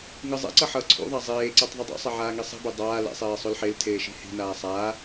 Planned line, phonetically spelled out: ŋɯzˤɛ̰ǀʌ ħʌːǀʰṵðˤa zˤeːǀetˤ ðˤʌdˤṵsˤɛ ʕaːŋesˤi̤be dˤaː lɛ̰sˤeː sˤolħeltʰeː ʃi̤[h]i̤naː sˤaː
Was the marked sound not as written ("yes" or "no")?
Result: no